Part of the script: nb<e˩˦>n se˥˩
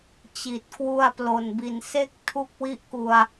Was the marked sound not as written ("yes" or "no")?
yes